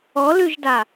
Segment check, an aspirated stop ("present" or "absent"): absent